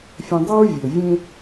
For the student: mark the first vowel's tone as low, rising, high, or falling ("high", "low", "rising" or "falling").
low